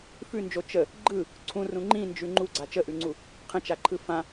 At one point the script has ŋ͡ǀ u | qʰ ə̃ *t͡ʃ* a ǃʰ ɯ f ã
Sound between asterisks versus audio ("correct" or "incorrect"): correct